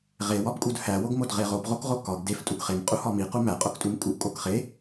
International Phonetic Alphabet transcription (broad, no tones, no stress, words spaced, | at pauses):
ʁe wɒbkʼudhæ woɡmodʁeʁob ʁokʁokɒɡ def tʼuɡχem qʼuhɒmi qumæ qʼoktʼumkʼuʔ kʼokχe